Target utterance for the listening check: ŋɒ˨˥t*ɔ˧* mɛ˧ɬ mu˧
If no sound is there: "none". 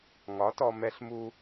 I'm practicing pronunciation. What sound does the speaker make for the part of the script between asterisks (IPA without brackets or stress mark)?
ɔ˧